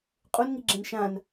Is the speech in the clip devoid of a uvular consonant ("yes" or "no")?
no